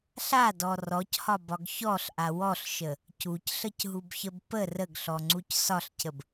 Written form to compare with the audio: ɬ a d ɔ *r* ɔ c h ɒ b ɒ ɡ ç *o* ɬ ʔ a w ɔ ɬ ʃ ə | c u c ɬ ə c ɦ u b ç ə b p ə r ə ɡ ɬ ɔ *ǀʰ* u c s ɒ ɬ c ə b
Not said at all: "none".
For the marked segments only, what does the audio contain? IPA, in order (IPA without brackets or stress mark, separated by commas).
r, ɔ, ŋ͡ǀ